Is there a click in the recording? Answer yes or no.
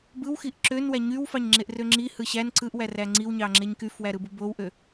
yes